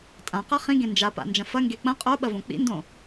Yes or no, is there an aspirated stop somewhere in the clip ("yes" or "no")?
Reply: no